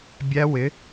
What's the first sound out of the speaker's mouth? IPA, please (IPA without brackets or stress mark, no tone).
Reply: bʲ